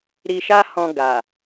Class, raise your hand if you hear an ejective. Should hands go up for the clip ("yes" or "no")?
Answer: no